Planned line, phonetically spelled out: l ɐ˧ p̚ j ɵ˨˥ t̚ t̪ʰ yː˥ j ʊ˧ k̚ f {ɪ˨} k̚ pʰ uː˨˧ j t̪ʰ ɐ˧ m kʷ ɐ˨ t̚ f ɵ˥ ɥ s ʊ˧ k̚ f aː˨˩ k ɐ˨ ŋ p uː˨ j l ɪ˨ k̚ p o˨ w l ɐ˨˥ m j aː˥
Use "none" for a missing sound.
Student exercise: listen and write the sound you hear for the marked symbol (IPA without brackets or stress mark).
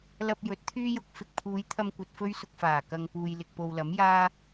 ɪ˨